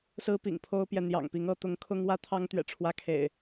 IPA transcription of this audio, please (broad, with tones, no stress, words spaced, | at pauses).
sɹ̩˦pḭ˨˩ŋpʰo˦ʊ̯pjɛ˨ n̪jɑ̰˨˩ŋpi˨˦ŋɤ˨˦ t̪ʊ˨˦ŋkʰʊ˦ŋ wä˦t̪ʰɑ˦ŋt̪ɥɛ̰˨˩ ʈ͡ʂʰwä˦kʰḛ˨˩ɪ̯